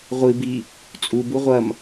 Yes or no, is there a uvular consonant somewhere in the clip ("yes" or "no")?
yes